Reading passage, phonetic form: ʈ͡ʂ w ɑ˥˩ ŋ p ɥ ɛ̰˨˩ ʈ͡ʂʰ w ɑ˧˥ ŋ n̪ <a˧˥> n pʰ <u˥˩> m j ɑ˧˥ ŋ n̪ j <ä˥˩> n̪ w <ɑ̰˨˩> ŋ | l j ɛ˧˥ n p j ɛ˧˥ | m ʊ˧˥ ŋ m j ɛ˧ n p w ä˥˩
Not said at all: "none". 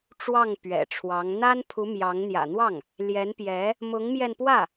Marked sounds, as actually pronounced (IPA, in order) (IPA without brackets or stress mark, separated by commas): a˥, u˧˥, ä̰˨˩, ɑ˥˩